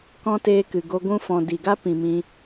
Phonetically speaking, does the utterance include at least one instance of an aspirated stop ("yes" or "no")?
no